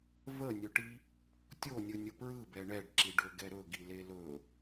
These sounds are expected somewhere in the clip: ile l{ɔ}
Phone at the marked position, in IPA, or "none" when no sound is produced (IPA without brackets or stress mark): ɵ